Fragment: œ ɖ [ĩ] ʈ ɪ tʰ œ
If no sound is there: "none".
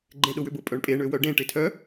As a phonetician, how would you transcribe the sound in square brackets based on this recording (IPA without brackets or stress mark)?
ẽ